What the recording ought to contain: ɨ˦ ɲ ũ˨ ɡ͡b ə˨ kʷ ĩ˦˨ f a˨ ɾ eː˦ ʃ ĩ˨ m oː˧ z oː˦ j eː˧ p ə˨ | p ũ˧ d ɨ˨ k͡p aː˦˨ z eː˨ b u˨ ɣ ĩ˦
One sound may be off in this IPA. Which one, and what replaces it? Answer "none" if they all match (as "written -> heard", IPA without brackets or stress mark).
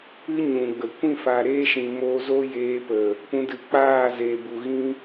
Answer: none